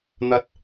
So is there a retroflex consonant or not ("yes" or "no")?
no